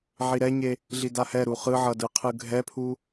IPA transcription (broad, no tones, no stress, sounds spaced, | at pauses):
ʕ i ɾ ɛ ɲ e | ɮ i d a h ɛ ɾ u χ ɯ ʕ ʌ d ɯ qʰ ɯ ɡʱ ɛ pʰ u